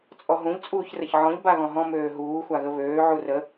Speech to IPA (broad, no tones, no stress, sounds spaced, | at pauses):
t͡sʼ ɔ ɦ ũ ʎ t͡sʼ uː ç r ə ç ʕ ɔ̃ ʎ b a ɣ ɔ̃ ɦ ɔ̃ m øː ɦ uː xʷ a ɣ ə β øː ʕ u r ə